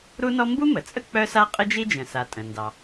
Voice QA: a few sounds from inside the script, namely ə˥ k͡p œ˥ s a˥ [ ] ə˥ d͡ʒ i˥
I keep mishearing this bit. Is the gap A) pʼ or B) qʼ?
B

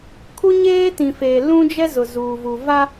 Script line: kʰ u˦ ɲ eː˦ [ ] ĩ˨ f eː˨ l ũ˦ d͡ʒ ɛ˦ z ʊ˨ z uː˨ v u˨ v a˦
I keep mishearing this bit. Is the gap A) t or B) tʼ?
A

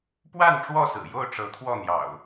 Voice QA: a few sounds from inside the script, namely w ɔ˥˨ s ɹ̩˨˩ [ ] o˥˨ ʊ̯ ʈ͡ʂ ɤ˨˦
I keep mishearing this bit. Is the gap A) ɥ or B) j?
B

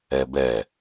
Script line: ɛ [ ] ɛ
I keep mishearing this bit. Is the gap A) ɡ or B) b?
B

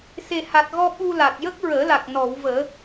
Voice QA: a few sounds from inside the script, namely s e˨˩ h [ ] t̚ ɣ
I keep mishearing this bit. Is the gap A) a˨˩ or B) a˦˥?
A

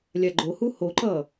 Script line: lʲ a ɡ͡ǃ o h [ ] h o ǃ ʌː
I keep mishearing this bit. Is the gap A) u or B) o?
A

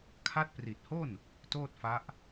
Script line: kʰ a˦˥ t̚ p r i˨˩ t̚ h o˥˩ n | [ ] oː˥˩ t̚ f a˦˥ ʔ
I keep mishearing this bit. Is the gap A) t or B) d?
A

